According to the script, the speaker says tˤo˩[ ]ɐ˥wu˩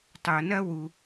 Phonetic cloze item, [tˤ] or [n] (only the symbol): n